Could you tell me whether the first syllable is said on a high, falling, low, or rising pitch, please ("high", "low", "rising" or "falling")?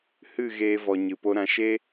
falling